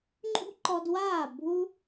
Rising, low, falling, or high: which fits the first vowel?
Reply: high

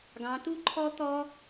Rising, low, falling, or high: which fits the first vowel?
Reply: rising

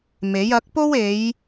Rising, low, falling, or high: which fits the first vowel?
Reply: rising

